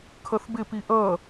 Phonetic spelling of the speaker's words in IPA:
kʰ ʌ θ b ɪ p i ʔ ʌ

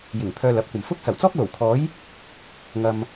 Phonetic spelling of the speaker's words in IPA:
j ɪ˨˩ ŋ pʰ œː˧ l ɐ˨˥ p̚ kʷ ɐ˨ m f ʊ˥ k̚ s ɐ˨˩ w t͡s ɔː˥ k̚ l o˨˩ w kʰ ɔː˨˧ j | ŋ ɐ˨ m

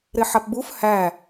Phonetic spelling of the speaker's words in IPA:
ɾ e ħ a p b u f h æ

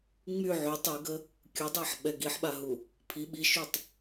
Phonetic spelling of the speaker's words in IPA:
ŋ͡m y ʕ y tˤ i ɡ ə | kʲ u dˤ ɛ ħ ɓ ɛ ɡ i ħ ɓ a ɦ u | pʰ i ɓ i ʃ y tˤ

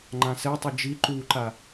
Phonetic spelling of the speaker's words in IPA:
ŋ͡ǃ ã s ɛ tˤ u d͡ʒ i ǃ u ǃ a

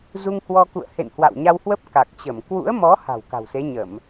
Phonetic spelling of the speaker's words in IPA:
z u˧ ŋ h w ɔ˧ k ṵ˧˨ ə̯ h ḛ˧˨ n h w a̰˧˨ w ɲ a˧ w h w ə˦˥ p̚ k a˨˩ k̚ t͡ɕ ə˧˩ m k w ṵ˧˥ ə̯ m ɔ˨˦ h a̤˨˩ w k a̤˨˩ w s e˨˦ ɲ ə˧˩˨ m

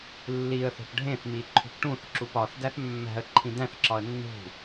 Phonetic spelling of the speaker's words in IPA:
lː i ə̯ θ o̤ p ɖʱ ẽ θ m i ǃʰ ṳ p ʈ ũ θ ǁ u p ɒ θ d æ θ mː æ̤ ə̯ ǃʰ ĩ d æ̃ θ ǁ ɒ ə̯ nː ṳ

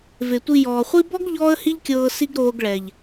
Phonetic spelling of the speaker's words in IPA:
v e˨ tʷ i˧ j ɔː˨ χʷ i˦ b ɔ˦ ɡ ʎ ɔː˦ ə̯ h i˦ ʎ kʲ ɤː˧ s i˦ ɡ ɾ oː˧ ɡ ɭ ɛ˨ ʎ

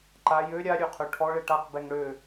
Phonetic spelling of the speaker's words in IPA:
ǃ a j ø ɾʲ a ɾʲ ø qʰ ø ʈʰ ɔ ɭ e ʈ a q b ɛ ŋ ɽ ø

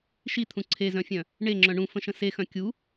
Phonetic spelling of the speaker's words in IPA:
ʃ i t̪ʰ ũ ǀʰ e z œ̃ fʲ œ̃ | ɳ e ŋ͡ǁ œ̃ ɳ ũ f ə̃ ʃ ə̃ s e x œ̃ kʲ u

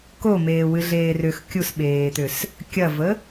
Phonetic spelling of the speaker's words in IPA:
k o m eː w ɨ ɮ eː r ʏ x kʲ u s ɓ eː t̪ ʏ s | kʲ ɐ v ə

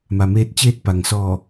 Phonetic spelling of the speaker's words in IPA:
m a˩ m eː˧˩ t̚ t͡ɕ eː˧ t̚ p a˩ ŋ s ɔː˧˩

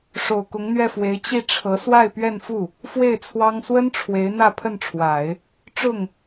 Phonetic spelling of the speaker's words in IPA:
ʂ o˨˩ ʊ̯ k ʊ˧˥ ŋ n̪ ɥ ɛ˥˩ f w e˧˥ ɪ̯ t͡ɕ i˥˩ ʈ͡ʂʰ ɤ˧˥ s w a˥˧ ɪ̯ p ɥ ɛ˥˧ n f u˥˩ | f w e˥˩ ɪ̯ t͡sʰ w ɑ˥ ŋ s w ə˥ n ʈ͡ʂʰ w e˧˥ ɪ̯ n̪ ä˥˧ pʰ ə˥˩ n ʈ͡ʂʰ w a˨˩˦ ɪ̯ | ʈ͡ʂ ʊ˥˩ ŋ

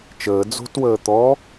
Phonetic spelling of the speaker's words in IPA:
t͡ʃ əː d͡z o̤ t w əː t̪ ɔ

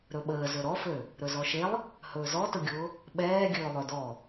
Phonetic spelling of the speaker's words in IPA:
ɾ ɵ ɓ əː z ɵ ɾ ɔ f ø | ɾ ɵ z ɔ ʃ e lˠ | h ɵː z ɔ t ʊ ɡʲ ʊː | ɓ ɛː ɡʲ ɵː lˠ ø d ɔ

